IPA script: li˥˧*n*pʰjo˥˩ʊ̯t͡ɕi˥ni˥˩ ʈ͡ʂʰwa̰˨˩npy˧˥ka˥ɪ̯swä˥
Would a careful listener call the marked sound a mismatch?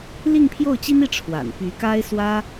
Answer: yes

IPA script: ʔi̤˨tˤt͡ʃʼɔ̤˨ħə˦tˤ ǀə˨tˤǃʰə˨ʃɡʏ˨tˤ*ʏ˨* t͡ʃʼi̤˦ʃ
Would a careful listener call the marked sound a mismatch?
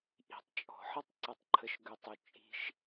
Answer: no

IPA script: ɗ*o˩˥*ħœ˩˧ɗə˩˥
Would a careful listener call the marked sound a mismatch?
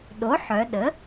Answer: no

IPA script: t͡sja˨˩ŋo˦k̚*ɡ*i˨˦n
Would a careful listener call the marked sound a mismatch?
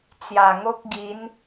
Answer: no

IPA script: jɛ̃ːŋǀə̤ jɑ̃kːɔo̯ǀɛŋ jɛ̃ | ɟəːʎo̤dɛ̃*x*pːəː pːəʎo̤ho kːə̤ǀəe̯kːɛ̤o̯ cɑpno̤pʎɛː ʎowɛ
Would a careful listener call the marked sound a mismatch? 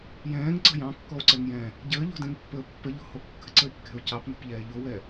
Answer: yes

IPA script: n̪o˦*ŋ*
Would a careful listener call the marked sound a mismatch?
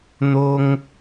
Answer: no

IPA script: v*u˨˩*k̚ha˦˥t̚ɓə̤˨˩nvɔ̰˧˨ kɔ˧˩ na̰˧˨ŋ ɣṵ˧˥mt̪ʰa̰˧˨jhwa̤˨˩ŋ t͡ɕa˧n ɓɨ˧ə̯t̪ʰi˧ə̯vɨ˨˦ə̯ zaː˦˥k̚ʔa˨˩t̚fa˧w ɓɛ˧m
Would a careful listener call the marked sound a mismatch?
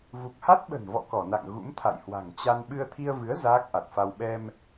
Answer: no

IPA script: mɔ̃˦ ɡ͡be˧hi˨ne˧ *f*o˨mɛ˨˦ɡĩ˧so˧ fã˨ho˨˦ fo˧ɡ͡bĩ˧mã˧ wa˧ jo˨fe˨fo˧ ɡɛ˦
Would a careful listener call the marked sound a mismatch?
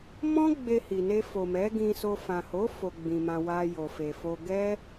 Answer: no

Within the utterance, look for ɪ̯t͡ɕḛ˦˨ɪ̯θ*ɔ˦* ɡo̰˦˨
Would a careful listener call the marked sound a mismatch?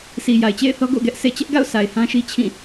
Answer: no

